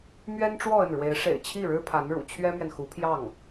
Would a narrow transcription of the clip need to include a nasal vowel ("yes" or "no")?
no